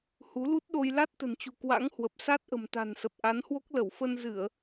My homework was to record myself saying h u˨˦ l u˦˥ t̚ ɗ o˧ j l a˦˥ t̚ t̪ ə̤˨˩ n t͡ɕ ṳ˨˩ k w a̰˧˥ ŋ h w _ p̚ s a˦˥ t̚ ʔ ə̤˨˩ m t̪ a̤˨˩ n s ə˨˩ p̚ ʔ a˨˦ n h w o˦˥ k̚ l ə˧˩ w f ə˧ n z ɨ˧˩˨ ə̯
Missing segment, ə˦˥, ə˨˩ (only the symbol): ə˨˩